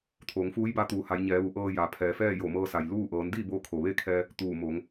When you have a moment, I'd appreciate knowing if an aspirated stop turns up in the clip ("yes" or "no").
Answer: yes